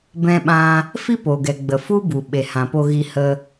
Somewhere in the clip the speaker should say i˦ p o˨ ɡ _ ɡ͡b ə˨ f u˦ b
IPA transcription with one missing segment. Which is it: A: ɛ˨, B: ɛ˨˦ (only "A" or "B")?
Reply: A